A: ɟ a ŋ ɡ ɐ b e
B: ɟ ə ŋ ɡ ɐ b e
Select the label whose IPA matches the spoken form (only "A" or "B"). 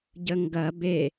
B